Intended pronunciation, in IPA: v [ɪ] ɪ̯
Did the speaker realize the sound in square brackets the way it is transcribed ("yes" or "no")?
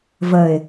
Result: no